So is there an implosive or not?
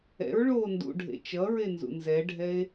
no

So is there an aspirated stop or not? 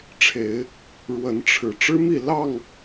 yes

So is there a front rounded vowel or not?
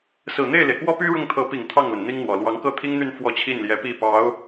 yes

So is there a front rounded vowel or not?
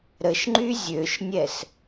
yes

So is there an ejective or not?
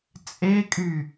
yes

